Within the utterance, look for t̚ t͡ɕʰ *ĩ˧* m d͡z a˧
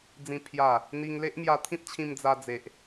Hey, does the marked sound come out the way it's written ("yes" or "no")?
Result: yes